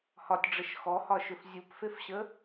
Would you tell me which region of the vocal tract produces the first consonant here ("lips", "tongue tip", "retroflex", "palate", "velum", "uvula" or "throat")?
throat